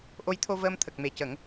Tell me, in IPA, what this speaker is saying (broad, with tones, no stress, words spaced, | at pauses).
ʔo˧˥jt̪ʰo˧vəː˧m t̪ʰə˨˩k̚me˨˩ cə˨˩˦ŋ